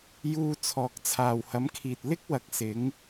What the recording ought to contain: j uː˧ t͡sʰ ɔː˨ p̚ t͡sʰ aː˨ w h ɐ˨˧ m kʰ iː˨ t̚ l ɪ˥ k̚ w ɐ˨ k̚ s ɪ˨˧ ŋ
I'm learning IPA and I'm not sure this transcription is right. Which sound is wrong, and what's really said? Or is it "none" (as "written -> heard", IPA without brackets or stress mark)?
p̚ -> k̚